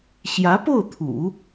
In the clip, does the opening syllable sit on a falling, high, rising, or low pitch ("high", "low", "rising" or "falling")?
rising